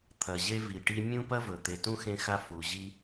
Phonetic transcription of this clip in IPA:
t̪ʰ ɐ˩ ʑ e˦ v i˩ ʈ i˦ mʲ ũ˥ p ɐ˥ v ɵ˩ t̪ e˨ t ũ˥ x ẽ˦ x a˦ f u˨ ʑ i˥

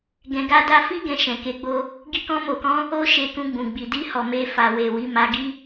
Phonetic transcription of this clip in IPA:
ɡ ɛ̃˧ ɡ a˦ d a˧ f i˦ ɡ ɛ̃˧ ʃ ɛ̃˨ k e˨˦ ɡ͡b o˧ | ɡ i˧ k ɔ̃˧ m o˨ k ɔ̃˧ | o˦ ʃ e˧ k ũ˧ ɡ͡b ũ˨ ɡ͡b i˨ d i˧ h ɔ˨ m e˧ f a˨ w e˨ w i˨˦ m a˧ ɡ i˦

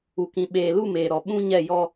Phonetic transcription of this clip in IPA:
u˨ k ĩ˨ ɓ eː˨ l u˦˨ m eː˨ ɾ ɔ˨ ɓ ũ˦ ɲ ɛ˦˨ j ɔ˦

